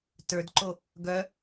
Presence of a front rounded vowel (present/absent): present